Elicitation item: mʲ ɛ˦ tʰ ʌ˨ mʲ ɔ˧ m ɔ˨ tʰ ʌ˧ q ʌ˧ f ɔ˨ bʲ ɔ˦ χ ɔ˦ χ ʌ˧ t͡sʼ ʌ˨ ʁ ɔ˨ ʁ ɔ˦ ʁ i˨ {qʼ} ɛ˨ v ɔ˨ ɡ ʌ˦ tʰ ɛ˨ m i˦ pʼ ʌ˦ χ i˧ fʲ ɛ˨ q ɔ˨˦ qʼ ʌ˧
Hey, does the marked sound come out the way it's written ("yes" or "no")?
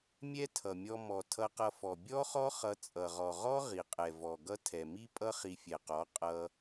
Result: yes